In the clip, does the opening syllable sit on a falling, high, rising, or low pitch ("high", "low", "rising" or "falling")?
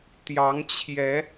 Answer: rising